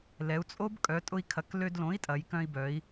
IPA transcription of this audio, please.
l ɛ˩˧ u̯ t͡sʼ o˦˥ b kʼ œ˩˧ tʼ ʊ˧ i̯ kʰ ɐ˩˧ k l ø˧ d l õ˩˥ i̯ tʼ ɐ˩˧ j k œ̃˧ i̯ b œ˩˧ i̯

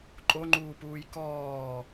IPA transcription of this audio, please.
ǃʼ o ŋ͡ǃ uː p uː j k ɔː

